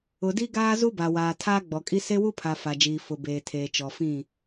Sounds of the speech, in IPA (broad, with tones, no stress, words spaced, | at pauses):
ʊ˨di˦ ɡaː˦zu˦ba˨waː˨ tʰaː˦ɡ͡bɔ˨kʼi˦ se˦wu˦pʰa˨ fa˨ d͡ʒiː˨ fʊ˨beː˨tʰeː˨ t͡ʃɔ˨fĩ˦˨